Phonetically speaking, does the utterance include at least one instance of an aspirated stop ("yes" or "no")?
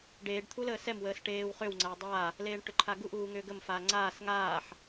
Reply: yes